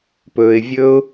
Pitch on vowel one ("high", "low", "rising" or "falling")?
low